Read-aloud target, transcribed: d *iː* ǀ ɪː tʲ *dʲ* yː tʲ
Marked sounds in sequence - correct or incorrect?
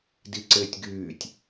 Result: incorrect: i, incorrect: ɡ

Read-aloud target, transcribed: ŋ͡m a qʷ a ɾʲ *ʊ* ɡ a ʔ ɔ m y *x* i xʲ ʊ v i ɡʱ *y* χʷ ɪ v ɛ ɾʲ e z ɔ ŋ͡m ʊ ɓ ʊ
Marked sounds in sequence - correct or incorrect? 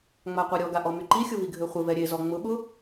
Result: incorrect: ɔ, incorrect: ǃ, incorrect: ø

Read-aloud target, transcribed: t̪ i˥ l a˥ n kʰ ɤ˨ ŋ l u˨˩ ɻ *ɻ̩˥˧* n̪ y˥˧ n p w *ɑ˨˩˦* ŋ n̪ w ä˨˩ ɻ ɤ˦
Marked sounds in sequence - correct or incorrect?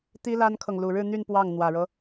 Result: correct, incorrect: ɑ˥˩

